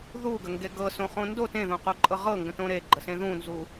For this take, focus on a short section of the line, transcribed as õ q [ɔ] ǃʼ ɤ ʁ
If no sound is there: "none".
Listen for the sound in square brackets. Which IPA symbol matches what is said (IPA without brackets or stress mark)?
o